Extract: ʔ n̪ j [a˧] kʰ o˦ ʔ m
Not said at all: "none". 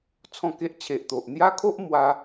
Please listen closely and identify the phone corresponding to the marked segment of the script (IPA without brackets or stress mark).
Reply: a˦